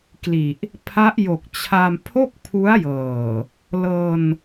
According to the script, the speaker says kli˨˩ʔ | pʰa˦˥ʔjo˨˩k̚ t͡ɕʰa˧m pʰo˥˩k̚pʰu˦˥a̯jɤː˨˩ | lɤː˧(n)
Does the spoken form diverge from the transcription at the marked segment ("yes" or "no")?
no